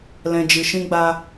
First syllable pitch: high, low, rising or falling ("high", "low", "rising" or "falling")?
low